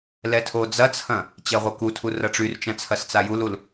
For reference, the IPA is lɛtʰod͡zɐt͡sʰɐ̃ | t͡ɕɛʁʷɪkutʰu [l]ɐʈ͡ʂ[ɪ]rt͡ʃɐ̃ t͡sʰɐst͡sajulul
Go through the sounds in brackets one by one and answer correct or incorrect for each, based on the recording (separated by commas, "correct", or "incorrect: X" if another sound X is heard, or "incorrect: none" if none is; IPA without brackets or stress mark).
incorrect: r, incorrect: y